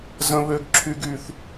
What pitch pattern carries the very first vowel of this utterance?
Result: high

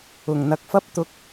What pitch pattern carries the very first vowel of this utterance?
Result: low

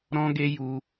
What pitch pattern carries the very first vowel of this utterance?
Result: high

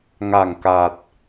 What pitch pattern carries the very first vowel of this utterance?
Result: low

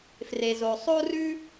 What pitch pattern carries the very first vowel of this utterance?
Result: low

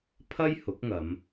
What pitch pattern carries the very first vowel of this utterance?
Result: high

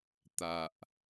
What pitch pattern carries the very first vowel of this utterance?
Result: low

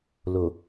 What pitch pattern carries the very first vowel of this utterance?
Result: low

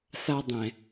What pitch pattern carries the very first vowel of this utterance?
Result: high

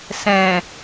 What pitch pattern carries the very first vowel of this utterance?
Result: low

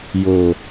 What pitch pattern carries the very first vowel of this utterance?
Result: low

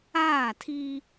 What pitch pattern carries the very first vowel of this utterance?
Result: falling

